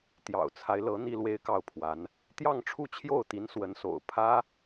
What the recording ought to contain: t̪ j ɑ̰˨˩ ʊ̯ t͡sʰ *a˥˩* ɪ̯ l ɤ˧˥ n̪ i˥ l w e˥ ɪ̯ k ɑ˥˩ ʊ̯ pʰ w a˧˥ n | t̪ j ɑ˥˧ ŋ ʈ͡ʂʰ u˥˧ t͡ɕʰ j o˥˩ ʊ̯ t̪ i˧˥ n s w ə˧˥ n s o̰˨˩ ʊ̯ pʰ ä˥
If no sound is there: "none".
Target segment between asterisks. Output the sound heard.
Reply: a˦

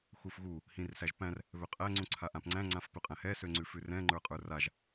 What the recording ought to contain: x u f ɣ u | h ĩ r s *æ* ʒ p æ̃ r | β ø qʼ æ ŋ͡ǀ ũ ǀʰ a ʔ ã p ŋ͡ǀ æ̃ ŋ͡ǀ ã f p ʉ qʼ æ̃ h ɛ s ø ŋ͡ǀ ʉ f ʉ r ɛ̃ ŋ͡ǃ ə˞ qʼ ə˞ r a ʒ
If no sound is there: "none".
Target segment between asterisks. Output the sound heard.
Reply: æ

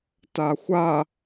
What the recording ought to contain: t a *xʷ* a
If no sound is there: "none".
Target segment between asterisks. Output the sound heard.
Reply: xʷ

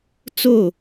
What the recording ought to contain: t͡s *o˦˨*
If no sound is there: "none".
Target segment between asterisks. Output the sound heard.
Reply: o˦˨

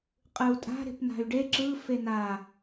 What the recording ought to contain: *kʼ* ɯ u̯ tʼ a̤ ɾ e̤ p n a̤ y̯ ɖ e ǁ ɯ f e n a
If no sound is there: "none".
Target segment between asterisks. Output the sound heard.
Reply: qʼ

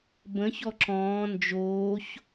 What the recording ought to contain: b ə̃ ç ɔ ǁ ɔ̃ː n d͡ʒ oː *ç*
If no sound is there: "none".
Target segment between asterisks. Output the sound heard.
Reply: ç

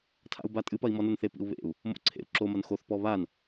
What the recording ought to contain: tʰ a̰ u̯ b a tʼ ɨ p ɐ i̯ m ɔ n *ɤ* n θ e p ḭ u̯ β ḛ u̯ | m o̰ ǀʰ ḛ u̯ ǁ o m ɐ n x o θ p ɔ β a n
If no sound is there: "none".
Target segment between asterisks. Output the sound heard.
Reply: o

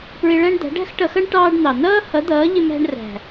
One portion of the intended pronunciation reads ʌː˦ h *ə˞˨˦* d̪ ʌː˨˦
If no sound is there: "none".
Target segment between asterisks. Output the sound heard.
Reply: ʌ˨˦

